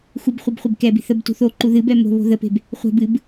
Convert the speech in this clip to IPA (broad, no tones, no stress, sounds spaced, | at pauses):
x u b χʷ e b χʷ e b k ɛ b i̤ θ ə b t ṳ θ o ǃ u ð ɨ b ɛ m o̤ β o̤ ð ə p e̤ b | χʷ ɛ̤ b ɨ b